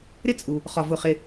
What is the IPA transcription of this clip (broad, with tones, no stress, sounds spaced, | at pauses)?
ɾ ɪ˥ t͡sʼ u˩ | χ ɒ˩ v ʊ˩ χ ɪ˩